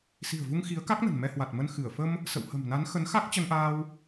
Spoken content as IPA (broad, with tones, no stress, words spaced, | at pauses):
si̤˨˩ə̯vu˧ŋ xi˨˦ə̯ka˦˥k̚nə̤˨˩n mɛ˧hwa˨˩t̚mə˧n xɨ˧˩ə̯ fə˧m | sə̰˧˨whə̤˨˩mna˨˦n xə˨˦n xa˦˥k̚t͡ɕə˧nʔaː˧w